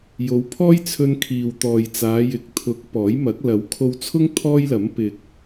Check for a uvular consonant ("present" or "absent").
absent